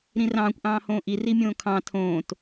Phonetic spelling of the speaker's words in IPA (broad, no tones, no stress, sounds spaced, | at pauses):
ɾ ĩ r ɑ̃ː kʷ ʔ ɑ̃ː h õː ʔ i r i mʲ õː kʰ ɑ̃ tʰ õː t